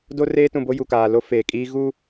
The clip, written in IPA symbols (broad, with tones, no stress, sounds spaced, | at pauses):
d o˦ r eː˦ t ũ˨ b o˦ j u˨ k aː˨ l o˦ f eː˨ kʼ iː˦ ɣ u˦